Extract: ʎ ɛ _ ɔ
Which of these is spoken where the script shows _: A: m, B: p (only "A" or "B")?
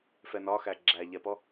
B